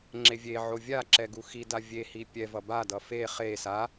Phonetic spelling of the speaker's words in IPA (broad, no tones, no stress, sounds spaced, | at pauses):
ŋ͡ǁ e vʲ e ʕ o vʲ a ǁ ɛ ɡ u x i d a vʲ e h i pʲ ɛ v ʌ b a d ʌ f e χ e s a